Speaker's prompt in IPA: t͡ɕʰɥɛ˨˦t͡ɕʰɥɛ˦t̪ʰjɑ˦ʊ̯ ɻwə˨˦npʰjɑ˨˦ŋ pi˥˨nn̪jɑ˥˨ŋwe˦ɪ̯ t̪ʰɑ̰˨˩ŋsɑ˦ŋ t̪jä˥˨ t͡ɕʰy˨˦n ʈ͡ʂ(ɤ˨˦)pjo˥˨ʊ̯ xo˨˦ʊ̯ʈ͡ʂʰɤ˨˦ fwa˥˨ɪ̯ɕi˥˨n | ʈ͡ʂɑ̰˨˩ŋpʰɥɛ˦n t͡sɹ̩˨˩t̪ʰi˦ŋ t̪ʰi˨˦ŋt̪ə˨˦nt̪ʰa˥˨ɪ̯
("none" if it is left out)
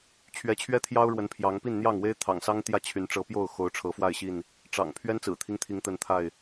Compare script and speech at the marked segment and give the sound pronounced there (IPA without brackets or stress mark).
ɤ˨˦